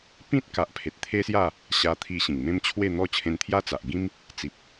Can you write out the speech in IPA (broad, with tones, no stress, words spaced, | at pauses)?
pĩ˦t̚ka˨ʔpʰe˨t̚ t̪ʰe˦sja˥˧ | ɕa˧t̪ʰi˧ ɕĩ˨˩ŋmẽ˦m t͡ɕʰwe˥˧n̪ɔ˥˧ t͡ɕʰẽ˧nt̪ʰja˦t͡sa˨ʔ ɡĩ˦m | t͡si˨p̚